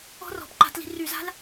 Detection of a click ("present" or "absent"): present